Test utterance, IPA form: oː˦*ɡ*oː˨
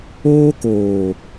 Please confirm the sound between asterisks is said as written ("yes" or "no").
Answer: no